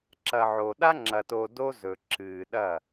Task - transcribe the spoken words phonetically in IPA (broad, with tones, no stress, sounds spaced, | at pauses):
ǁ ɐ˨ ʕ o˨ ɗ a˦ ŋ͡ǁ ɐ˨ t o˨ d o˦ z ɵ˨ ǁ ɨː˨ ɗ ɐ˦˨